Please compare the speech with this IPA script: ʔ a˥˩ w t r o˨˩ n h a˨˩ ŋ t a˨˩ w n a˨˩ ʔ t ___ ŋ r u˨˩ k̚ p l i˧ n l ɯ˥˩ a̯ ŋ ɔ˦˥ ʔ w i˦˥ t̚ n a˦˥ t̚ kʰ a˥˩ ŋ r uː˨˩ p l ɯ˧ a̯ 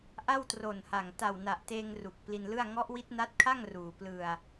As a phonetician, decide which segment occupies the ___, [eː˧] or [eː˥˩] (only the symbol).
eː˧